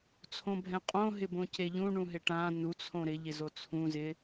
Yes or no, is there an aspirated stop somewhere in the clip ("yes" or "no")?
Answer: yes